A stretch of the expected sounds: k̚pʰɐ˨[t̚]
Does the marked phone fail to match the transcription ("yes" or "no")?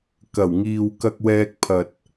no